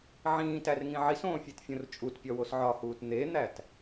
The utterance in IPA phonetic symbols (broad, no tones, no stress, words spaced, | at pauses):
ʕĩːtærŋĩ ʕisõːfʲetfʲõr t͡ʃʼutpʲɒwos ʕɒhuːt n̪en̪æt